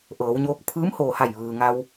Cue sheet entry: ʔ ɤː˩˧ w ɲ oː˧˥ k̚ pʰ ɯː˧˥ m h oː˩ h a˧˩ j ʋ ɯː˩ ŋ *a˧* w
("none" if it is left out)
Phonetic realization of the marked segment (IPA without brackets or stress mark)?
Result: a˧